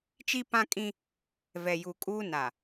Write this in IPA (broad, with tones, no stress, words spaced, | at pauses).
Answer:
t͡ʃi˦pã˦kʼĩ˦ | vɛ˨ju˨kʼuː˦ na˨